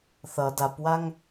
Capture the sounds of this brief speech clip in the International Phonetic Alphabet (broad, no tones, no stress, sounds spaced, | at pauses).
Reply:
θ ʌ d a p w a ŋ